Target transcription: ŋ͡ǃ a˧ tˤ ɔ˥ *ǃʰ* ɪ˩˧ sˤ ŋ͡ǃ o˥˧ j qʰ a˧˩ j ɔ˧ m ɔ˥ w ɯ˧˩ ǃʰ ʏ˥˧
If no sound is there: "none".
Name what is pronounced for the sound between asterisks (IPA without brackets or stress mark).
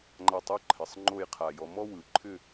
ǃʰ